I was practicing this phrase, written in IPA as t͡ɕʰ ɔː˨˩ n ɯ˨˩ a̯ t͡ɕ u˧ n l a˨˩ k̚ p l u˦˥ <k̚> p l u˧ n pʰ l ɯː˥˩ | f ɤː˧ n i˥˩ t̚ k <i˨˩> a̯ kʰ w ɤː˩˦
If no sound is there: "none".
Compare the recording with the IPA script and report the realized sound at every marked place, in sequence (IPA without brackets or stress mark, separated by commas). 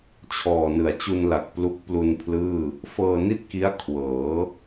k̚, i˦˥